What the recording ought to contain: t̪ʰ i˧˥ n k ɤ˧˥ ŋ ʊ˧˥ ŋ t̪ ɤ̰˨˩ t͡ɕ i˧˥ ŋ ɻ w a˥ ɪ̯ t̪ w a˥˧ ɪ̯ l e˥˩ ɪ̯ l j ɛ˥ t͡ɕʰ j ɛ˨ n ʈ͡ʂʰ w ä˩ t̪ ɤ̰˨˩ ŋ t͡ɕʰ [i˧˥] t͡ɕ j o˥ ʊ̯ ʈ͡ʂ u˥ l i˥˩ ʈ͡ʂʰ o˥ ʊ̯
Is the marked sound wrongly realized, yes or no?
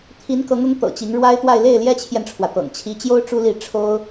no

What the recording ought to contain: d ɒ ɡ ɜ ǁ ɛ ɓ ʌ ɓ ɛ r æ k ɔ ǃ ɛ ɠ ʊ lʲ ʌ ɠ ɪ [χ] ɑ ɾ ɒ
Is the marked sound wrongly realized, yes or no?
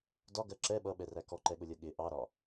yes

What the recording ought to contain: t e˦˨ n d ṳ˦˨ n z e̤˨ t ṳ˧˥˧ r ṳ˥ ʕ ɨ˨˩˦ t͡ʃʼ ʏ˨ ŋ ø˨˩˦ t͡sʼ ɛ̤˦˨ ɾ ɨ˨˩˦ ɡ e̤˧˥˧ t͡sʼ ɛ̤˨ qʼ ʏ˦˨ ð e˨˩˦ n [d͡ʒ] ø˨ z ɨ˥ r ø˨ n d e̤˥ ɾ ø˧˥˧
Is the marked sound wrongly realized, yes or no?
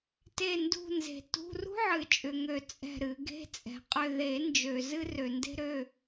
no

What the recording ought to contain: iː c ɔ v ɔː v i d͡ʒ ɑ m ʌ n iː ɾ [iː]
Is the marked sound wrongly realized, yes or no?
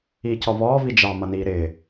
yes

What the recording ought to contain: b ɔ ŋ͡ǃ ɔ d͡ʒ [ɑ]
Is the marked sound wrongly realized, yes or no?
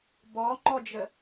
yes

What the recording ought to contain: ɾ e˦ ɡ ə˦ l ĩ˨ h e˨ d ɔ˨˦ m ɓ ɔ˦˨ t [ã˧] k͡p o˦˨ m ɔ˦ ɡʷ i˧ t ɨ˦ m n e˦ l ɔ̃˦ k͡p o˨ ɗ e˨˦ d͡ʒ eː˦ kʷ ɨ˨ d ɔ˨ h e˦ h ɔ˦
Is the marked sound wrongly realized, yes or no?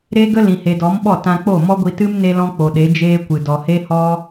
no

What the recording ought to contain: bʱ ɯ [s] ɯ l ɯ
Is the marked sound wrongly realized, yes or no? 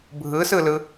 no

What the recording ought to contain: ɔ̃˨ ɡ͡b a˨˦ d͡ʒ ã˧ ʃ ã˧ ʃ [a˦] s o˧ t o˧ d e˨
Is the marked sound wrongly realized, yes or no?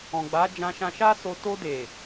no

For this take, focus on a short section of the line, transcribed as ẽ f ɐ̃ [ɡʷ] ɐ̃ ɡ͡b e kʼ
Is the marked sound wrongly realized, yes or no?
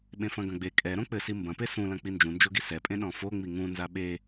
yes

